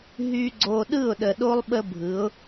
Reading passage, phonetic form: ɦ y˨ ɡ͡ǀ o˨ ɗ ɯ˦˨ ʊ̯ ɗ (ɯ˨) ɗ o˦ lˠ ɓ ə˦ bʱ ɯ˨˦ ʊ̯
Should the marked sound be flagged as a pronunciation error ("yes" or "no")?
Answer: yes